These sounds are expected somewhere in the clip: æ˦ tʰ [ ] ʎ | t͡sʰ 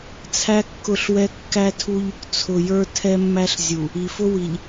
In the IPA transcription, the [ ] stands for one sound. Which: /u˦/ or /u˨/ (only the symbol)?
u˦